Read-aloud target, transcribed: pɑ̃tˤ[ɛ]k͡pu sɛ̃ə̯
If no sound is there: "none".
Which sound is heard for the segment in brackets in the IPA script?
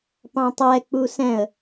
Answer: ɛ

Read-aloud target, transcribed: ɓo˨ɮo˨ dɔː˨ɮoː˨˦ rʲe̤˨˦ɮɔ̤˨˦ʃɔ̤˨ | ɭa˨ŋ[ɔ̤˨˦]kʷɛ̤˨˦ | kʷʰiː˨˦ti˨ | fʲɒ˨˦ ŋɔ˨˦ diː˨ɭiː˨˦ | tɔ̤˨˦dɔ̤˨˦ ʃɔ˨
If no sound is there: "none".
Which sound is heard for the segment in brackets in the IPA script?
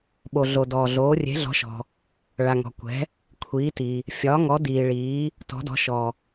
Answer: ɔ̤˨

